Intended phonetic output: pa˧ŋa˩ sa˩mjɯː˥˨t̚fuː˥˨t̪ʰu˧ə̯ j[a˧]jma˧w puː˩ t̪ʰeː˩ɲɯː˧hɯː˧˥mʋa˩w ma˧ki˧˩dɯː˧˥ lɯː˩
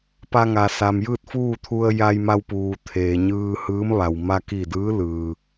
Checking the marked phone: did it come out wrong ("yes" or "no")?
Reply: no